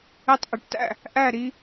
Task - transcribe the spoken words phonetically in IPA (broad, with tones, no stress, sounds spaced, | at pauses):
e˥˨ tˤ ʔ e˩˥ ʈ t æ̰˥˨ | ʔ æ˥˨ ɾ i˦